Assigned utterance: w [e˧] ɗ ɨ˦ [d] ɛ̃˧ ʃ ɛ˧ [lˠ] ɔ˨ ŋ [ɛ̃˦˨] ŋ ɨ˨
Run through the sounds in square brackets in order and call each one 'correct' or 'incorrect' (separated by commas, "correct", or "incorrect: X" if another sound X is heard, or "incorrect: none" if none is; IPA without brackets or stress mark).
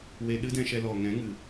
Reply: correct, correct, incorrect: l, incorrect: ɛ̃˨˦